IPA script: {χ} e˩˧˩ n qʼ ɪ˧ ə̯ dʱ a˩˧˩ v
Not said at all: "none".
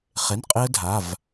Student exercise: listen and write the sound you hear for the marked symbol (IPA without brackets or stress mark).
χ